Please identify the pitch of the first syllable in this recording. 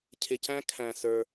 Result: low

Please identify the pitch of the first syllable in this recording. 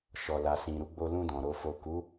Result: low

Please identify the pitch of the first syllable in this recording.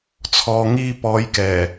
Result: low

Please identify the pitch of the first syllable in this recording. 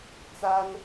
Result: high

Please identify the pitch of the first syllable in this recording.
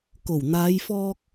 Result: low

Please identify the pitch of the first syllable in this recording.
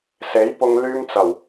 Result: rising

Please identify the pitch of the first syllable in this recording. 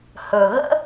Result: low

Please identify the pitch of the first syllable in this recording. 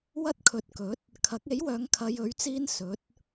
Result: high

